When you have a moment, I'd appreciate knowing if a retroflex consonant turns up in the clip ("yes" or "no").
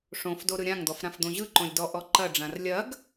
yes